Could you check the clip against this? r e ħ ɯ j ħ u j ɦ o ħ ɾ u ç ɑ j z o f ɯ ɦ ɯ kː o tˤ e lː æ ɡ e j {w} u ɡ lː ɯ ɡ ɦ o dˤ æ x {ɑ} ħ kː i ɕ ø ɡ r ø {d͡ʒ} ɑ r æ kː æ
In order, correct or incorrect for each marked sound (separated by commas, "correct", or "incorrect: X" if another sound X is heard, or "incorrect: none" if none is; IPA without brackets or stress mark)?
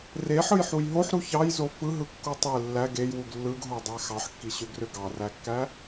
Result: correct, correct, incorrect: ɡ